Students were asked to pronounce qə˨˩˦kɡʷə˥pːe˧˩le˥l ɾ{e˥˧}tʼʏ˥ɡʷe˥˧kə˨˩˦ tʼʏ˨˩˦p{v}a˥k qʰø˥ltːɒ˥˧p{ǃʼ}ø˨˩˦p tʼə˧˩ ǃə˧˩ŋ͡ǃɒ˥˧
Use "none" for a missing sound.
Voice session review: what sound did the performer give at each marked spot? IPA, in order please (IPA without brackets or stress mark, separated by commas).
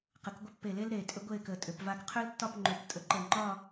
e˧˩, v, ŋ͡ǃ